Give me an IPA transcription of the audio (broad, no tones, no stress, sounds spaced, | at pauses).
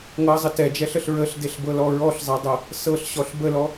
ŋ ɤ zˤ ə t ɛ d͡ʒ ɛ ɬ ə ɬ ɹ ə ɬ d e ɬ b ɤ l ɔ ɹ ɔ ɬ zˤ ɛ dˤ ɤ | s ɤ ɬ ɕ ɔ ɬ b ə l ɔ